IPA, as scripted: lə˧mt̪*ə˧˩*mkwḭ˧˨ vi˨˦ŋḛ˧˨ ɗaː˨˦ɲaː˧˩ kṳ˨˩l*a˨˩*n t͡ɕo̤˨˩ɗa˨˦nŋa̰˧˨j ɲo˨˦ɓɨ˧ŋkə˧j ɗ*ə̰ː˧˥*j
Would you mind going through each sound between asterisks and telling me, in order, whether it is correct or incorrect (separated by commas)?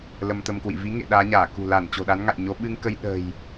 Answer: incorrect, incorrect, incorrect